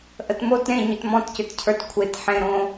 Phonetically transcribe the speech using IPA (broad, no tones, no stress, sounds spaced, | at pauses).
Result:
ʔ ə t m o t ɾ ẽ ɲ ʏ t m ɔ̃ t c ʏ t cʰ ə˞ t kʷʰ e t ħ ẽ ɾ õ